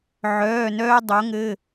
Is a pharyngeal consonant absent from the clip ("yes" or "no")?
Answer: no